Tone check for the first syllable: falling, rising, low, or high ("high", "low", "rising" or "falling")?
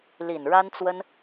low